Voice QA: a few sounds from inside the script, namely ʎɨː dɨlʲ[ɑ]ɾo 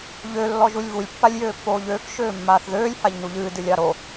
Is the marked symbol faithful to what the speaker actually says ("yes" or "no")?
yes